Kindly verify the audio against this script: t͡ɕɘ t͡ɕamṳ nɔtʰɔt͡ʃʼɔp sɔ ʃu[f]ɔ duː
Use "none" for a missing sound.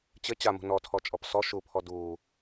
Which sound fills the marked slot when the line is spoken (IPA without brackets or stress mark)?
pʰ